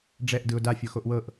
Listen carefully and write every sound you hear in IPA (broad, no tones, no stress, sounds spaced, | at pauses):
ɖ͡ʐ ɛ ʔ d ɯ ʊ̯ d a fʲ o x o ʔ w ɤ ʔ